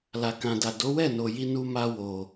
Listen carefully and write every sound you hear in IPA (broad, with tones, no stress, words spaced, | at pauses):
la˨kã˨da˨ do˨˦wɛ˦˨no˨ji˧ nu˧ma˧wo˨